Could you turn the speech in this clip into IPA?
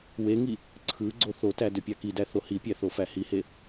w e ŋ i | ǀʰ ɯ ɡ͡ǀ o θ o t æ d ø pʲ ɑ k i d æ θ o h i pʲ æ θ o f æ h i h e

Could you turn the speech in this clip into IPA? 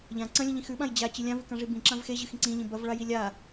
ʎ ã ǀ ɐ̃ lʲ ɐ̃ ʎ ĩ x ʉ ɓ ã j d͡ʑ a t͡ɕ ɨ lʲ ã v ɨ k ã ʐ i b ĩ ǁ ã v x e ʑ ɨ x ĩ ǀ ĩ ʎ ĩ b ɐ v ɭ a j i lʲ a

